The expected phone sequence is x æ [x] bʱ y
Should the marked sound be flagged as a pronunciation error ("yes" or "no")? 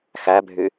yes